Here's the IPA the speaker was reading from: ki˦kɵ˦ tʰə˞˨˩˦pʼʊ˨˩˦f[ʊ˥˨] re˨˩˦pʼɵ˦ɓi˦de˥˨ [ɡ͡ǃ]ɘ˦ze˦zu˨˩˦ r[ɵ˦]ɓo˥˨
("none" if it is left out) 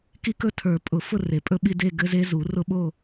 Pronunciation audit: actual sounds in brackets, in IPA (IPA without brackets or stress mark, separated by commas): ʊ˥˨, ɡ, ʊ˦